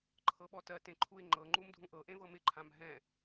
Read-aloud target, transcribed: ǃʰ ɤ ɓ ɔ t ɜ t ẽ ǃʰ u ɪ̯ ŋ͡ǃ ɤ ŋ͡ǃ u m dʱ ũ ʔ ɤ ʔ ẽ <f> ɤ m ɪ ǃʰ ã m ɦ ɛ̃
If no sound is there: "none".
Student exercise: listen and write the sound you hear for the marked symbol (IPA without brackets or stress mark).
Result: v